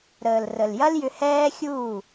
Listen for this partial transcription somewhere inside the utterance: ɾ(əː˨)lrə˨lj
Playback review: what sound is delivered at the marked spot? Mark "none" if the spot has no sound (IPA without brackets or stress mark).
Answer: əː˨